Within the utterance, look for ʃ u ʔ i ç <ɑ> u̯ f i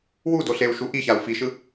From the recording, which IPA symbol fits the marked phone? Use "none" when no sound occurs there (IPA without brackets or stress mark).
a